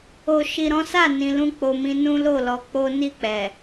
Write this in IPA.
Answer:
o˨ʃi˨ɾɔ̃˨˦sa˦˨ nĩ˨lũ˧ k͡po˨mĩ˧ nũ˦lo˦˨lɔ˧ k͡po˦ ni˦˨k͡pɛ˨

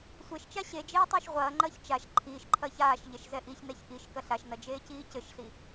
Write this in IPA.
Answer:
sʷeʃt͡ʃa ɕed͡ʒeː tˤɘːʃʁʷɐːŋ͡ǃɐːç t͡ʃaʃ ǃʰiːʃǃʰɐːç aːʃ ʎɛʃzɛʔiçnɛç ʔiʃ kɐɬaʃnɐ d͡ʒeːciːcɘʃɬi

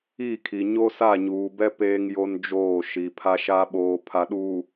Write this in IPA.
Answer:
i˦˨kʰi˨ ɲo˦sa˦˨ɲuː˨bɛ˦ peː˦ŋjo˦nd͡ʒoː˦˨ʃi˨ pʰa˦ʃa˦ ɓoː˨pʰa˨ɗuː˨

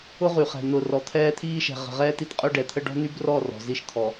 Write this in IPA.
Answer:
ʊ˦ʁy˨χɛ̤˨ n̪ʊ˨ rɔ˨t̪ʰɛː˦t̪ʰiː˦ʃɛ̤˨ ʁə̤˨ʁɛː˦ti˨tqʼœ˦ ɖɛ˨t̪ʰə˦ ɖɔ̤˦n̪y˦brɔ˦˨ rɔ̤˨zi˦ʃt̪ʰɔ˨

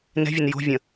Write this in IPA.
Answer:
nɛ̤vʲon jo̤vʲə̃

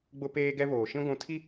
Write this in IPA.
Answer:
ɡ͡bʊ˦peː˦ɡɛ˦ βoː˨ ʃĩ˦ɡʷũ˨˦tʰi˦

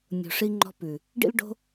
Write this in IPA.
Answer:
nʲo̤˨ʂi˧ŋ͡ǃɔ̤˧ pʉ˨ | ɖḭ˦lɖo̤˦

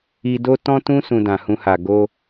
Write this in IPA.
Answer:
i˧do˦ tɔ̃˦tũ˦ sũ˧dã˨hũ˧ha˨ ɡo˧

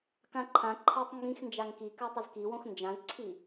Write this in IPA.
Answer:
kãǃʰãǃʰatˤ ŋɡĩxnd͡ʒaŋ kika tˤʊzkiwõx nd͡ʒãzǀʰi

